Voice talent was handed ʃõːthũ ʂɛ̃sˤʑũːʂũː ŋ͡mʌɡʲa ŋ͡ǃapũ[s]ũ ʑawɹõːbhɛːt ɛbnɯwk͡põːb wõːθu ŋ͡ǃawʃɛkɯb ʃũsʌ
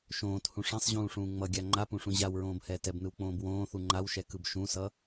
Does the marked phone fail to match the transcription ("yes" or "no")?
yes